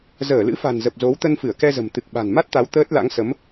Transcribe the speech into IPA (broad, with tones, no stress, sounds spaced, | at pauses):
z əː˧˩ l ɨ̰˧˥ f a̤˨˩ n z ə˨˩ p̚ z o˨˦ w t̪ ə˧ n f ɨ˧˩ ə̯ k ɛ˧ z ə̤˨˩ m t̪ ɨ˨˩ k̚ ɓ a̤˨˩ n m a˦˥ t̚ t̪ a˨˦ w t̪ əː˦˥ t̚ l a̰˧˥ ŋ s ə˨˦ m